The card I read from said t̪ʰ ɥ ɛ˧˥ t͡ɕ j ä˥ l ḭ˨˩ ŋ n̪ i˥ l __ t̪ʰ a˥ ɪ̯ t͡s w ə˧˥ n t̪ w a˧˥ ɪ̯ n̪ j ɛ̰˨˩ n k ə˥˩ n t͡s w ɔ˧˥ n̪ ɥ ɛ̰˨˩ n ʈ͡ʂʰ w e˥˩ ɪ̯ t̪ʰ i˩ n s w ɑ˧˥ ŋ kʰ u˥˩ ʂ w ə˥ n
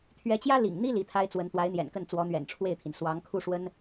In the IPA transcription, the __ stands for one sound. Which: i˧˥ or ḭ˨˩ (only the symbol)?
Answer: i˧˥